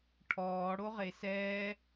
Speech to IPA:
ʈʰɔː ɽoʁesɛː

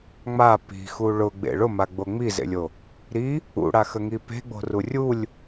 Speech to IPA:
ŋ͡ma pi̤xu ɭʊɡ͡bḛ ɭʊmaɡ͡bo ŋ͡mizḛlʲo | ɾi | ṵɽaxəŋi pe̤ɡ͡bo̤ru rʲulʲ

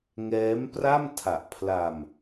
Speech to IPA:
ŋɛː˦˥mpra˥˩m tʰa˨˩ʔpʰla˧m

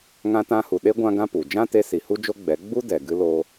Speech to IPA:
ŋã˧tã˧hu˨ɗe˦ ɡʷã˦ɡã˦pu˨ d͡ʒã˦te˧si˨ hu˦d͡ʒo˦ɡ͡bɛ˨˦ ɡ͡bu˦dɛ˨ɡɨ˧lo˧

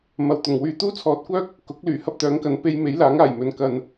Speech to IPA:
mɐ˨˩wt̪ʊ˨˩ŋwyː˨˧ t̪uː˥t͡sʰɔː˧t̚kʷœː˥k̚ | kʊ˨˥k̚lyː˨˩ hɐ˥p̚t̪œː˨˥ŋkɐ˨˥n pe˧j me˨˥jlaː˨˥ŋaː˨˩jmɵ˨n kɐ˧n

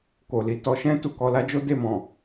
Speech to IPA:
ko˨li˨ tɔ˨˦ʃɛ̃˦ tu˦˨kɔ˧la˦ d͡ʒo˦de˦˨ mɔ̃˨

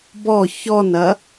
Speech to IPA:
bɔ çɔnɐ

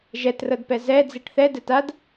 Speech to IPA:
ʒɛtrɤdpɛ zɛ d͡ziʈθɛ dɛtad

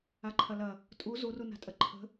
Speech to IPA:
aǃʰɐlɐ | tʼu zuruna̤tʼɐ ǃʰə̤

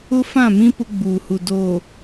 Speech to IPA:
ʊ˦fã˦˨mĩ˦ pʊ˦ɡ͡buː˨hu˨ do˨

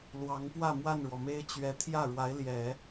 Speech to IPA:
lwɑ˧˥ŋpwä˥˧ mwa˥˩nɻwɔ˩me˥ɪ̯ t͡ɕɥɛ˧˥ t̪ʰjä˥˩ɻwa˧˥ɪ̯ ljɛ˨˩˦

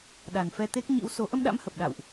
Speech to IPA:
ɗa˨˩nfɛ˧t̪e˦˥k̚ ɲḭ˧˥wso˨˦ ʔə˧mɗa̰˧˥m hə˨˩p̚ɗa̰˧˨wʔ

